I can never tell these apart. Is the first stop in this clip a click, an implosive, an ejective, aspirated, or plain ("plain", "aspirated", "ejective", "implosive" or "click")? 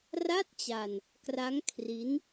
plain